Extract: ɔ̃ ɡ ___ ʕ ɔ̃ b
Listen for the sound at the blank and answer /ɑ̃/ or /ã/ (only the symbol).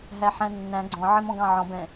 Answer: ɑ̃